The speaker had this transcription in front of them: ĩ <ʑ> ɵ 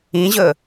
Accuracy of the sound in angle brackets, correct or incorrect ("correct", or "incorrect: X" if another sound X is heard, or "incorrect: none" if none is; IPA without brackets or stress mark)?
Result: correct